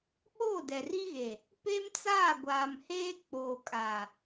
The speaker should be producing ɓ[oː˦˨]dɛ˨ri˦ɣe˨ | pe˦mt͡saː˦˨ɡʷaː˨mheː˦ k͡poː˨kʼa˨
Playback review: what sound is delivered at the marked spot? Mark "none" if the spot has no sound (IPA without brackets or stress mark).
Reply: oː˦˨